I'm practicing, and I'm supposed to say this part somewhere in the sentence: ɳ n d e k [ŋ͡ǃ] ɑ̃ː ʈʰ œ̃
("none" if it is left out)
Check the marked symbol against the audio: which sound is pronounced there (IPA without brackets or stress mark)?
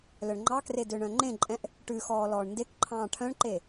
ǃʰ